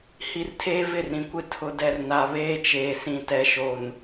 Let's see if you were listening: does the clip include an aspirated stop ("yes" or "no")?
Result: yes